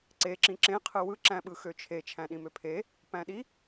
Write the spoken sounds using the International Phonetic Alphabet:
ǀe ǁĩǁẽ qʰɯwɯ ǁæ̃ɓɯxøt͡ʃʰe t͡ʃʰæ̃ɗĩmøpʰe | pæ̃ɗi

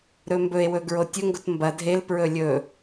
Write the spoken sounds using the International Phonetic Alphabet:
ɾɵmbɵe̯wɵ ɡɹotʲɵŋɡot mbɐ dʱelpɹɵ lʲɵ

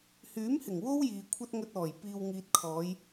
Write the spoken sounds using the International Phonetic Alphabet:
hyː˨˥mhɪ˨˩ŋ wo˥wjiː˨ kʷʰɐ˧t̚ŋɵ˨t̚ ɔː˨˩j piː˨wŋiː˨t̚kʰɔː˨˧j

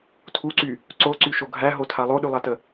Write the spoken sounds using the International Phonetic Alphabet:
tʰuǀy | ǀoǀyʃo ɡʱæɦotʰa lˠoɗylˠatə

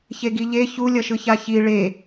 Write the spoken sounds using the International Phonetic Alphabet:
çeɡiʎe çulʲʌʃɯ çaçi ɭe

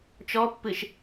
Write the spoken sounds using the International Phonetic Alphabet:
t͡ʃɔpːɨʃ

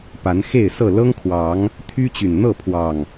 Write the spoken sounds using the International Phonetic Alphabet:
pa˨˦nxe˥˨ɪ̯sɤ˥˨ lɤ˦ŋkʰwɑ˨˦ŋ | t̪ʰy˦t͡ɕy˨˩n n̪ɤ˥˨pʰwɑ˨˩ŋ

